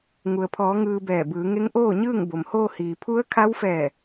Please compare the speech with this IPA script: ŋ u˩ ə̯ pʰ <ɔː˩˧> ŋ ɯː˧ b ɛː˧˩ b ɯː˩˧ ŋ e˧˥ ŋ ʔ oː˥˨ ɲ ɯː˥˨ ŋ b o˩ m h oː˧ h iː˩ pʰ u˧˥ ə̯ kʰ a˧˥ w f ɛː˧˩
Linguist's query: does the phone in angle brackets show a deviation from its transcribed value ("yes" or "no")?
no